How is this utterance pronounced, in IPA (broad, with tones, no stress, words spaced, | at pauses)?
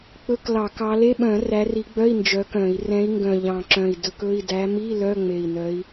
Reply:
k͡pɵ˧˥˧klɑ˧˩˧kɑ˨˦ le˧˥˧ɓœ̃˧˩˧ ræ˨˦ri˨˦ɡ͡bœ˧˥˧i̯ nd͡ʒœ˨˦kœ̃˧˩˧i̯ rɛ̃˨˦i̯ŋɡœ̃˨˩ ʎɑ̃˨˩ǁœ̃˨˩i̯ dɵ˨˦kɵ˧˥˧i̯ dæ˨˦mi˧˥˧ lœ˧˥˧ŋ͡me˨˩i̯nœ˨˦i̯